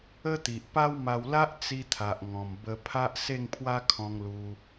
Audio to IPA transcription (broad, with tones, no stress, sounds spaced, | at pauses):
ə˦ t̪ i˨ ʔ p a˦ w m a˧ w l a˦ ʔ t͡s i˧ t̪ʰ a˨ ʔ ŋ ɔ̃˨˩ m b ə˧ pʰ a˦ ʔ s e˥˧ ŋ pʰ w a˦ kʰ ɔ̃˧ ŋ l u˧